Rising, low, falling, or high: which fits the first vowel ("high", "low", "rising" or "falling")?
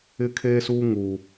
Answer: high